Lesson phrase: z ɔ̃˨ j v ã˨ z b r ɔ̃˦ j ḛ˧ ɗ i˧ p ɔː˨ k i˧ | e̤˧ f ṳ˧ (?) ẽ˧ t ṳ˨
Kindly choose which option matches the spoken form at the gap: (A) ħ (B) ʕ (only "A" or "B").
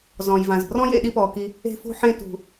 A